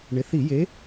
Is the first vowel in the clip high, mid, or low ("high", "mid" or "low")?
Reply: high